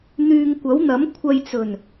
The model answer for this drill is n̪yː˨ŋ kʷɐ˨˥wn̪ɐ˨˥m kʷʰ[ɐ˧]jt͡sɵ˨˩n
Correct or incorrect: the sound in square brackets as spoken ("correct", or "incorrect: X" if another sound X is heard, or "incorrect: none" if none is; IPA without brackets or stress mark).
correct